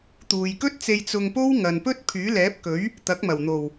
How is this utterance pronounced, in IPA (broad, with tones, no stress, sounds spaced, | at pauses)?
t̪ uː˨ j k ɵ˥ t̚ t͡s e˧ j t͡s ʊ˧ ŋ p o˥ w ŋ ɐ˨ n p ɵ˥ t̚ pʰ yː˨˥ l ɛː˨˥ p̚ k ɵ˨˥ ɥ | t̪ ɐ˨˥ k̚ m ɐ˨˩ w n̪ o˨˩ w